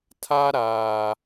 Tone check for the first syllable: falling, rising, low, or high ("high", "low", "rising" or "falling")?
high